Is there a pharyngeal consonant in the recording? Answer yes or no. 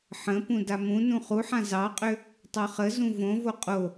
yes